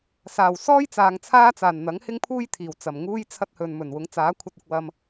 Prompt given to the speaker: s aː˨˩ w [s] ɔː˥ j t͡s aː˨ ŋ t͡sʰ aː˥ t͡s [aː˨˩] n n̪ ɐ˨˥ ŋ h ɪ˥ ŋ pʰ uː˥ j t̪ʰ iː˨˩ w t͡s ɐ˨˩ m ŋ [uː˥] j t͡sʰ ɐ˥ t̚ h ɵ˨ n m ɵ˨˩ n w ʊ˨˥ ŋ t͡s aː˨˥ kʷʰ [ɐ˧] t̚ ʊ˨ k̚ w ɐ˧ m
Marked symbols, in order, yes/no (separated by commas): yes, yes, yes, yes